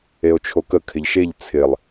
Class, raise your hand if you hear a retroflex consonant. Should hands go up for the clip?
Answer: no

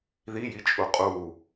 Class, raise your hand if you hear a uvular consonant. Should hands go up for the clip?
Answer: yes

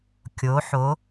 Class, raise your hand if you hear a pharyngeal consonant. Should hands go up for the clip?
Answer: yes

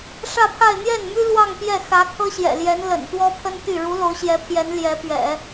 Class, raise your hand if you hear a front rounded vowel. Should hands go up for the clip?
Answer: yes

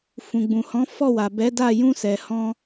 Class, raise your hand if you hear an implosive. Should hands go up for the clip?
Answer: no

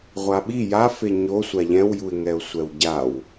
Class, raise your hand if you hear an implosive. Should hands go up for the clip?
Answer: yes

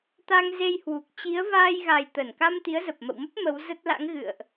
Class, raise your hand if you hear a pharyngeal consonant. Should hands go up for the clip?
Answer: no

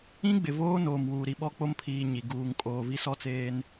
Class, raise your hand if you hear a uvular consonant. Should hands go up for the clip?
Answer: no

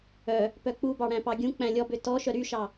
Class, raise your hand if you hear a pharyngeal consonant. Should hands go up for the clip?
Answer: no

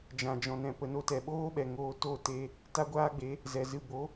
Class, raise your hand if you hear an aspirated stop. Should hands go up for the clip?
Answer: no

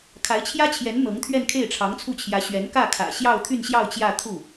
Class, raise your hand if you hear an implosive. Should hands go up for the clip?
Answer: no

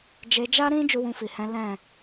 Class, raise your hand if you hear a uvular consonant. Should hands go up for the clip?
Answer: no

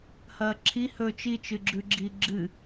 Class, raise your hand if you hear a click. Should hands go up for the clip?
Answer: yes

